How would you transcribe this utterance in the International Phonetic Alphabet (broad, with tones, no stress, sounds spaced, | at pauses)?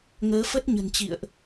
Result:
ŋ əː˨˦ f ə˦˥ t̚ ɲ ə̤˨˩ n t͡ɕ ḭ˧˨ ə̯ ʔ